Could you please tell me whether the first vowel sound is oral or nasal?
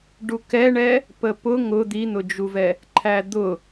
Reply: oral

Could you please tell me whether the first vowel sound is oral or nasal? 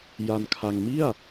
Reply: oral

